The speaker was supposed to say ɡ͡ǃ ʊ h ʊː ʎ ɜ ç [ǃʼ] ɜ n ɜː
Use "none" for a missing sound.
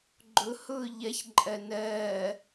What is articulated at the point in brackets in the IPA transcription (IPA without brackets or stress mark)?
ǃʼ